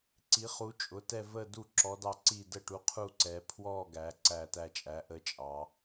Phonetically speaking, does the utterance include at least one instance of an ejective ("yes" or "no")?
yes